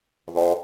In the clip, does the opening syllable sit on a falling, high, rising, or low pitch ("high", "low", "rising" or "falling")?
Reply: low